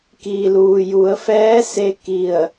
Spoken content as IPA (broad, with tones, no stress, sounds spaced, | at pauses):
k iː˩ l uː˩ j u˩˧ ə̯ f ɛː˧˥ s e˧ k i˧˩ ə̯